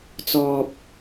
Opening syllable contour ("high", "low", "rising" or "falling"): high